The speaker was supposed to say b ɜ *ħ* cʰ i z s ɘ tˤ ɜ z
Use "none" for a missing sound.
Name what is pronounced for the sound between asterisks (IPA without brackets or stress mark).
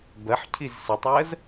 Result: ħ